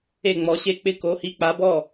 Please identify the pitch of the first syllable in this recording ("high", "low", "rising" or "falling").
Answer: falling